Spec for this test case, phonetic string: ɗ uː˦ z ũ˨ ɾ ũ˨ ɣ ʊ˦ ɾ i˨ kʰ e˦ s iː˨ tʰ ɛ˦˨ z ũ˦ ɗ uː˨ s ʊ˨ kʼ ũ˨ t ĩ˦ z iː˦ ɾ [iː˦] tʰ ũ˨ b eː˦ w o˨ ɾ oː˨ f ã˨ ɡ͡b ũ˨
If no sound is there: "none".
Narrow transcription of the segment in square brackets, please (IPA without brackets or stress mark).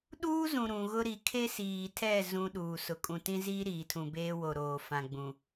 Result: iː˨